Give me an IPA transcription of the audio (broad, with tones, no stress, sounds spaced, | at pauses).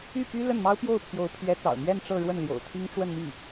y˥˩ p y˥ l ə˥˩ n m ɑ˥ ʊ̯ p j o˥˩ ʊ̯ pʰ j o˧˥ ʊ̯ pʰ ɥ ɛ˧˥ t͡s ɑ̰˨˩ ʊ̯ m ɥ ɛ˥˧ n ʈ͡ʂ ɤ˥˧ ɻ w ə˥˩ n l j o̰˨˩ ʊ̯ t̪ʰ i˥ ŋ ʈ͡ʂ w ə˥˧ n m i˥˩